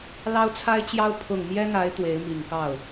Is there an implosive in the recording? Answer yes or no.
no